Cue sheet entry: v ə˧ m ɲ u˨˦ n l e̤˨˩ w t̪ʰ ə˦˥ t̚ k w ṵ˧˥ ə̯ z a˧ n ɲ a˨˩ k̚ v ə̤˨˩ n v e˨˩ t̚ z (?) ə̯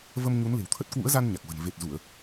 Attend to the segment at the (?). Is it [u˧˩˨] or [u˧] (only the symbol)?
u˧˩˨